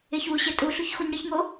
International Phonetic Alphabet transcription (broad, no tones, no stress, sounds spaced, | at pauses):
ɪ ç w u ɕ ɪ tʼ u ɬ u ç x u ɲ ɽ ɪ ç ŋ o